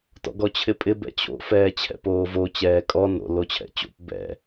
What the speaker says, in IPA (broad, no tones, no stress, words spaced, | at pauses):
tɔ̰ɡɔt͡ɕʰɪpʼɪ bɛ̰t͡ɕo̰fɛː t͡ɕʰɛ̰poːvo t͡ɕɛːkʼɔ no̰ lot͡ɕʰɛ̰t͡ɕo̰p bɛ̰